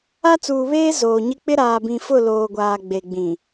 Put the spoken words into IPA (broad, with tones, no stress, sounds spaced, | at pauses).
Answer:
a˦ t͡s uː˨ β eː˦ z oː˨ ɲ ɪ˦ k͡p ɪ˦ ɾ aː˨ b ĩ˨ f ʊ˦˨ l oː˨ ɡʷ aː˨ ɡ͡b e˨ ɡ͡b ĩ˨